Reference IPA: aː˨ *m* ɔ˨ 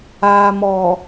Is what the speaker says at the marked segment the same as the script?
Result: yes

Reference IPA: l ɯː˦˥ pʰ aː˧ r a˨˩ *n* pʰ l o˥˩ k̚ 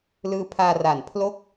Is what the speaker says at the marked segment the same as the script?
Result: yes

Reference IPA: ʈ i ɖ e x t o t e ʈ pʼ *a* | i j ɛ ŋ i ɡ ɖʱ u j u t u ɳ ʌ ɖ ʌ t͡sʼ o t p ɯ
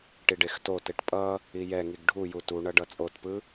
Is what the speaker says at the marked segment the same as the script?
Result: no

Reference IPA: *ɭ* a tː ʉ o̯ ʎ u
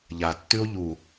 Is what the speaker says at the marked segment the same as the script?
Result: no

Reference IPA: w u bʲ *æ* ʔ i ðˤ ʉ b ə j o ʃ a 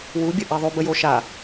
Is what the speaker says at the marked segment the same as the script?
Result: no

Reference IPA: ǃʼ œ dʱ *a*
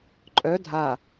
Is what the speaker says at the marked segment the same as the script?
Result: yes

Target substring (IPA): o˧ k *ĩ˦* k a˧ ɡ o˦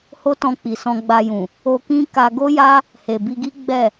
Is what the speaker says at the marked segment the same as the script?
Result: yes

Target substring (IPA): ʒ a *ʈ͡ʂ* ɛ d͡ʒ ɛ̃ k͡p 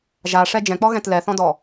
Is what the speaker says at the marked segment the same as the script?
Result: no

